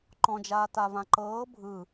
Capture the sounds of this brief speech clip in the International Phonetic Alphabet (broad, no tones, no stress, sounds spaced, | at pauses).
ǃ ɔ̃ d͡ʒ aː t a v ã ǃ ɤː bʱ ɯː